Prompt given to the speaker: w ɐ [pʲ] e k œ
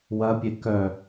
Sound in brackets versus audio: correct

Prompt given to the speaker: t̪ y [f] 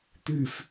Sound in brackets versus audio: correct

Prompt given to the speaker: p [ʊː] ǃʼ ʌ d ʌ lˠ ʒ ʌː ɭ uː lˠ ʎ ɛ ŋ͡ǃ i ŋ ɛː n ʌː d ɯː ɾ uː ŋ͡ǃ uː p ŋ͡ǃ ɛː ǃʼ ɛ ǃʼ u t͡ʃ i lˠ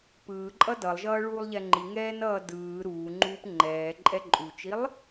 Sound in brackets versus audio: incorrect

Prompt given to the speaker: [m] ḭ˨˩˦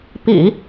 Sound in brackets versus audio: incorrect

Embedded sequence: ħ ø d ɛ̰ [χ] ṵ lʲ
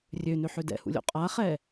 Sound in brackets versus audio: incorrect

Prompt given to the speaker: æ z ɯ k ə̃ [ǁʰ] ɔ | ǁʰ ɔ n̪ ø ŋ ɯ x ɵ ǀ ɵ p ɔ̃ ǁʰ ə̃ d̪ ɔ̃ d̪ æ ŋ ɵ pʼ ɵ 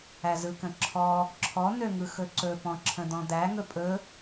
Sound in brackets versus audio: correct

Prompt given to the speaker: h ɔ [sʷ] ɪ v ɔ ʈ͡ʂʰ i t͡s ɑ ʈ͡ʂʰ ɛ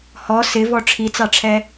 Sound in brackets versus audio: incorrect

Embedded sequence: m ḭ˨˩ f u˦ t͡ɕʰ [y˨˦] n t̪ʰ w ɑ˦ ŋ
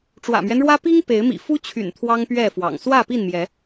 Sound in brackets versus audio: incorrect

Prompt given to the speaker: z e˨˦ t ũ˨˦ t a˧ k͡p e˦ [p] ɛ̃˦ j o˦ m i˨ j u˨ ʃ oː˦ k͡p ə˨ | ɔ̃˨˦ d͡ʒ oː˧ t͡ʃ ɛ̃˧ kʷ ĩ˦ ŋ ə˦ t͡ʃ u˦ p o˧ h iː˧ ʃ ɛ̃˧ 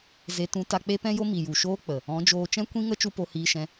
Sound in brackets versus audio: correct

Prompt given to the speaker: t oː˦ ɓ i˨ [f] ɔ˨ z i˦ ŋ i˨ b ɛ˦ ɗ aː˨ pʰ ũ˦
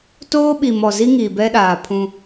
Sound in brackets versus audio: incorrect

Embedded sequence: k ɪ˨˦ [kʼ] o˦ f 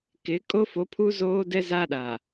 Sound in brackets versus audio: correct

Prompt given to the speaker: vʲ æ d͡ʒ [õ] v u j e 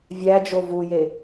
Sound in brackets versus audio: incorrect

